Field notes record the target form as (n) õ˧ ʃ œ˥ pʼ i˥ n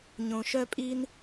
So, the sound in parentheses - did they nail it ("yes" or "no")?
no